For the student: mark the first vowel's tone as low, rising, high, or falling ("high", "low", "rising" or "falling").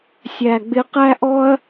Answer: low